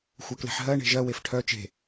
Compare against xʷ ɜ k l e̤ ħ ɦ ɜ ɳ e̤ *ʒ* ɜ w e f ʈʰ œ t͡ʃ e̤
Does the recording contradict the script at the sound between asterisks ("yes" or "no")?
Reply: no